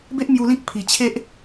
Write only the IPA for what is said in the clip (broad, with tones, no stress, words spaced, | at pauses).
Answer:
be˦ʔ mju˧lĩ˦k̚ pʰi˨˩t͡ɕʰe˦ʔ